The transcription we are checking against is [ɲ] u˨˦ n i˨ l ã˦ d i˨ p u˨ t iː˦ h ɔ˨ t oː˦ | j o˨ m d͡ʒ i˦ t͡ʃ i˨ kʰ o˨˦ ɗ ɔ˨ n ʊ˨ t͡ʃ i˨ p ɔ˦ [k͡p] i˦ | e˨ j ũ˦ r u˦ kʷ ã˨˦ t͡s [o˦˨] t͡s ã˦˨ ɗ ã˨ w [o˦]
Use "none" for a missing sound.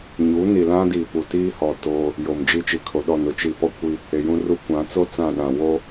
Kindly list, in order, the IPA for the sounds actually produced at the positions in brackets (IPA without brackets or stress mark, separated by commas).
ɲ, kʷ, o˦, o˦